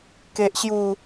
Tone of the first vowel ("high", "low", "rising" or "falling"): high